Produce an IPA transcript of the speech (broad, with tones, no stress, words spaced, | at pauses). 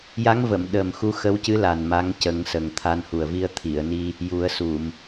ja˧˥ŋvə˨˩˨m ɗə˨˩m xu˧xə˧˥wcɨ˧˥la˨˩n ma˧˥ŋcə˨˩˦ŋsə˨˩ŋt̪ʰa˧n hu˨˩ə̯vi˧ə̯t̪ʰi˨˩˨ə̯ni˧ | ju˨˩˦ə̯su˨˩˨m